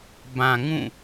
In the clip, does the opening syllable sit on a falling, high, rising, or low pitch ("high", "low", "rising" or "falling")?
low